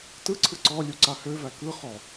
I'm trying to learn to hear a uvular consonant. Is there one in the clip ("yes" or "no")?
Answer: yes